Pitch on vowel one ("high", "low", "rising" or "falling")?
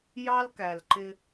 high